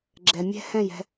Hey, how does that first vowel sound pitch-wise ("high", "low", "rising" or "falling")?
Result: low